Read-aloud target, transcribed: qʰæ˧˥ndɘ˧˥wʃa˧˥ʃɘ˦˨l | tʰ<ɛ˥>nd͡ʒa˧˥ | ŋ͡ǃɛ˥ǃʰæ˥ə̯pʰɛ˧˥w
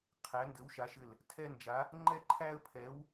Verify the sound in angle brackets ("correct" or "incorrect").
correct